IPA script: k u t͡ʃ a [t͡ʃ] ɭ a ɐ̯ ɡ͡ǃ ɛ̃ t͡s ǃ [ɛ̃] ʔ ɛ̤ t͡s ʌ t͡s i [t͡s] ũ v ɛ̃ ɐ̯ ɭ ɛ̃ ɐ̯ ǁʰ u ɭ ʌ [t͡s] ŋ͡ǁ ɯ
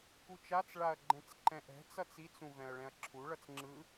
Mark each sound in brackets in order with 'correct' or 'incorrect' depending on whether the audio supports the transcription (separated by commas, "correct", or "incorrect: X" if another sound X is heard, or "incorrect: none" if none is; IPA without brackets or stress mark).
incorrect: t͡s, correct, correct, correct